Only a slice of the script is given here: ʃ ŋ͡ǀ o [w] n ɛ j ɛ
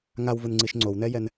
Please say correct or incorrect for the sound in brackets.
correct